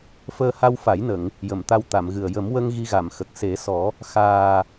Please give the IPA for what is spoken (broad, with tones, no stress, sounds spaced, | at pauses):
f əː˧ h a˧ w f a˨˩˦ j n ə˨˩˨ ŋ | j ə˨˩˨ m t̪ a˧ w t̪ a˨˩˨ m ɣ ɨ˨˩ ə̯ j ə˨˩˦ m w ə˧ ŋ ɣ i˧ ɣ a˨˩˨ m x ə˨˩ k̚ s e˨˩˦ s ɔ˨˩˦ | x aː˨˩